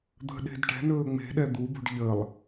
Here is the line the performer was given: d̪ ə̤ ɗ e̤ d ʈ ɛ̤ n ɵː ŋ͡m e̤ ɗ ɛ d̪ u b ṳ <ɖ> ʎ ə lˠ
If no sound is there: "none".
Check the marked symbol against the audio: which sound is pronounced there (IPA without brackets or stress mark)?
ɖ